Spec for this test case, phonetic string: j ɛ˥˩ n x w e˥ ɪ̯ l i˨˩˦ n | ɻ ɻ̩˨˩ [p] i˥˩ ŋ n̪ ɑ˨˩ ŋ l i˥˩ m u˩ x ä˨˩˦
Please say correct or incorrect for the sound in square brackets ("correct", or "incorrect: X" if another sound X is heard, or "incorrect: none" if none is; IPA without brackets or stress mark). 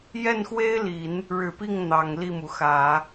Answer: correct